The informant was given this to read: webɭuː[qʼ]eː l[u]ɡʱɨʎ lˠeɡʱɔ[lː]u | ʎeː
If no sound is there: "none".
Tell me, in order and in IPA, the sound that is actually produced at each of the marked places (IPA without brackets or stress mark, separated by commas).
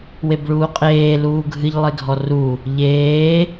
qʼ, uː, r